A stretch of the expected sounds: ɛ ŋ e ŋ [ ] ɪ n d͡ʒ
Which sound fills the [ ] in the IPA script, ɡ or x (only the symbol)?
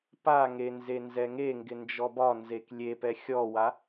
ɡ